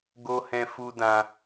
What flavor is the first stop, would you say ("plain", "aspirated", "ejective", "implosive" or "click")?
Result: plain